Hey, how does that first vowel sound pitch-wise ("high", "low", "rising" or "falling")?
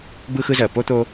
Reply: high